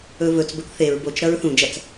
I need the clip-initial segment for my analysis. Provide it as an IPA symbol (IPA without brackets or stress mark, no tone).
ɵ